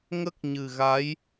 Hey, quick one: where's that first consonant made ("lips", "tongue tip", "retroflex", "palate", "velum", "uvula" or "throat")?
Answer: velum